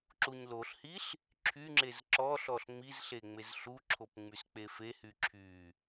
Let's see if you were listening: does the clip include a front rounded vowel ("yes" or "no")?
yes